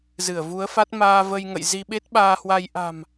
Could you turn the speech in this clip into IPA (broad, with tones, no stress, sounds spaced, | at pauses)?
z ɨ˧˩ ə̯ v u˨˦ ə̯ f a˦˥ t̚ m aː˧ v ə˧ j ŋ ə̰˧˨ j z i˧ ɓ e˦˥ t̚ ɓ aː˧ h w a˧ j ʔ a̤˨˩ m